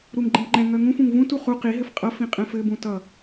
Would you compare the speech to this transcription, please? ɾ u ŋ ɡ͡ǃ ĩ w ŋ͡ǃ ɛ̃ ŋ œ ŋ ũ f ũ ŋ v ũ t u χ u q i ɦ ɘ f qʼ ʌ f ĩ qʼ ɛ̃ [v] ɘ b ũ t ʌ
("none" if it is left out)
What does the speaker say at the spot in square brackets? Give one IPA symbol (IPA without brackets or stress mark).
f